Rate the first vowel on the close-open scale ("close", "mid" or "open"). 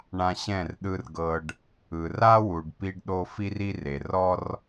open